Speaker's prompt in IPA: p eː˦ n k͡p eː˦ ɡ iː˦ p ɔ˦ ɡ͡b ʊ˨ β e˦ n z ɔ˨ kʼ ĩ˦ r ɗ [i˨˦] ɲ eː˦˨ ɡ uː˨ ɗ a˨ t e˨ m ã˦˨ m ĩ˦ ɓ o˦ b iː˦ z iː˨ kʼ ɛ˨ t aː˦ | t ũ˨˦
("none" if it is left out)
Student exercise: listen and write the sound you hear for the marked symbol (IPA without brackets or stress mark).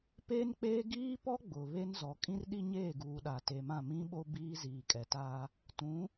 i˦